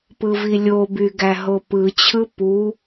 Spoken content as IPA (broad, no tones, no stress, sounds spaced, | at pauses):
p ɯ v i lʲ o b y ɡ æ ɦ o p ɯ t͡ɕʰ ɯ p u